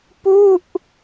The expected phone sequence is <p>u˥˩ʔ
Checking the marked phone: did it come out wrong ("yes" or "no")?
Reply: no